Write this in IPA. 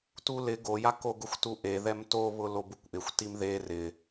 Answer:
tulɪ ɡojak oɡʊxʷtuʔe ðɛmtoβʊ lobukʷʔɪxʷ timðe rɪ

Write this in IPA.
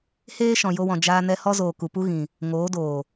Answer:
heː˦ ʃɔ̃˨jo˧wɔ̃˨ d͡ʒaː˧nɛ˧ hɔ˦zoː˨ ku˨pu˦ ɣĩ˨ | ŋoː˨˦doː˨

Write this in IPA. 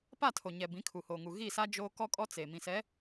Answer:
pa˦˨tʰo˨ɲɛ˨ bĩ˨˦kʰu˨hoː˨ŋu˨ ɣi˦˨sa˦ d͡ʒoː˦ kɔ˦kʼɔ˦ t͡seː˨ mĩ˨sɛ˨˦

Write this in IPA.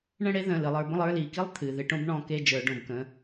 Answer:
ɳə̃˦˨ɽe˦ðə̃˩˧˩ lɨ˩˧lˠə˞˩˧bə̃˦˨lˠ ə˞˦˨ li˩˧ki˦lˠ t̪ʰɨ˩˧˩ ðɨ˦˨ ʈõ˦bɳɔ̃˦˨ke˦˨ d͡ʒə˞˩˧ɖõ˩˧bkə̃˩˧˩

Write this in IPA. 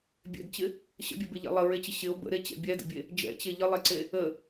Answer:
bʲɛ̰dt͡ɕɪ | ɕə̰bʲɛbeʎɛ̰ lˠəɹet͡ɕɪ ɕɪo̯ bə̰ɾet͡ɕɛ̰ bʲɛdə̰bʲe | d͡ʒɛ̰t͡ɕe ʎəlˠɛǀe | ə

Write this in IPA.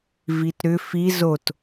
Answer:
vitɾʏ fi zot

